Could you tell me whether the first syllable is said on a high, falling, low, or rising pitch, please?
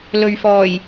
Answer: low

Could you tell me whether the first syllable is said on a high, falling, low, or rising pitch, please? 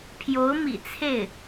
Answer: rising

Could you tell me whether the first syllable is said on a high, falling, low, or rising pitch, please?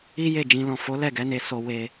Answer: high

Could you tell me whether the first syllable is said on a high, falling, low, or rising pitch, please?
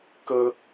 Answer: high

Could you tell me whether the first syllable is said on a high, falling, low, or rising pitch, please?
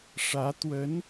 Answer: rising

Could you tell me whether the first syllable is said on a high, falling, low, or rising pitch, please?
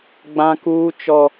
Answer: high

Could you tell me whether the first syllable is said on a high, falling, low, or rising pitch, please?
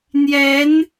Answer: rising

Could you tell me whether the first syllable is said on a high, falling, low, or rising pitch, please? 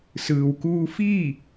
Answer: low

